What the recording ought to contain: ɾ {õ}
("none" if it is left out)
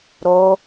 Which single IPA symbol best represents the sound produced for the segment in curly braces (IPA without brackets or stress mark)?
o